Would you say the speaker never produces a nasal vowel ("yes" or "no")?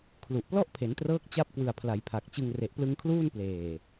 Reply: yes